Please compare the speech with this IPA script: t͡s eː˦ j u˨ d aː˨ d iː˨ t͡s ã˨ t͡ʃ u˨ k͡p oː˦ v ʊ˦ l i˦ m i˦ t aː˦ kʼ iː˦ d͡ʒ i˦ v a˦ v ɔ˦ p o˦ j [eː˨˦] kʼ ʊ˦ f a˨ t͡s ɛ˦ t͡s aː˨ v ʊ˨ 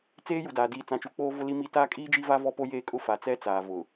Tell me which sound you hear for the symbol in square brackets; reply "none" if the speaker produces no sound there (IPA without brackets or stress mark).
eː˦